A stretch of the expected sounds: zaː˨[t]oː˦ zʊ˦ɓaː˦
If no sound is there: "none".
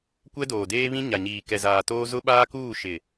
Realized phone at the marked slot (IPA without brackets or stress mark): t